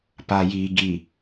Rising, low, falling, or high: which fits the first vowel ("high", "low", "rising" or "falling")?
low